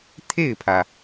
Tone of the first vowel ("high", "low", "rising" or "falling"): falling